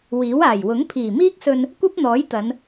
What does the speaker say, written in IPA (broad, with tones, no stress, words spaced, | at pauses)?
wiː˨˥w aː˨˩j wʊ˨˥ŋpʰiː˨˩miː˥k̚sɵ˧n | kʷɐ˥p̚n̪ɔː˨˥jt̪ɐ˨˧n